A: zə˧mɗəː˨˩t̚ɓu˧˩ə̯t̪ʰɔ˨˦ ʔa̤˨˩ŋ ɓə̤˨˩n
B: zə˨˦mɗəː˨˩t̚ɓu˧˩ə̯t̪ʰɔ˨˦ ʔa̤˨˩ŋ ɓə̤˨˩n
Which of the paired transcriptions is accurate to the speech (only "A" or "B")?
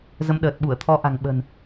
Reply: B